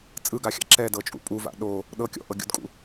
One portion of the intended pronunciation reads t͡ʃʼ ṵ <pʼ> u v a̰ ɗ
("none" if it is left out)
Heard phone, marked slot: pʼ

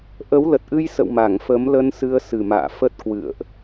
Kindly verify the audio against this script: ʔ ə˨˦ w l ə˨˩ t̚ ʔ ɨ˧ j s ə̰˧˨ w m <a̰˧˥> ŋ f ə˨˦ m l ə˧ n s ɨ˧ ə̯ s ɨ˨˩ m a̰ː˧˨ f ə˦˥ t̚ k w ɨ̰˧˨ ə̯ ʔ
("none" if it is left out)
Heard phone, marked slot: a˧˩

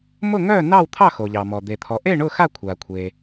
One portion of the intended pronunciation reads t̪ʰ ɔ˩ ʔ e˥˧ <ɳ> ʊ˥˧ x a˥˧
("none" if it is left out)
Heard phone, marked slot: ɳ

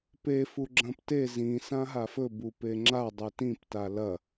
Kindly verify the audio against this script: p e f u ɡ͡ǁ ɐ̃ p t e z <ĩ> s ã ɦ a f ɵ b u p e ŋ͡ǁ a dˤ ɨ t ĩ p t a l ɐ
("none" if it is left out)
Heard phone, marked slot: ĩ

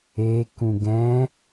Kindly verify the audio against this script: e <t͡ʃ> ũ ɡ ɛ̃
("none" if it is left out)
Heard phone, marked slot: k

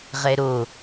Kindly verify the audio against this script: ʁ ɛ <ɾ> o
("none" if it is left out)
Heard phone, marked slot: ɾ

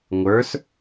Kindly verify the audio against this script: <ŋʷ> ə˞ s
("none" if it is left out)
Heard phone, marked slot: ŋʷ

